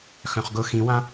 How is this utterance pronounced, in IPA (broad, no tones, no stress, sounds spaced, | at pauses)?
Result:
x œ̃ χ ɡ ʊ x ĩ w ã